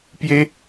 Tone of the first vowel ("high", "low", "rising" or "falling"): high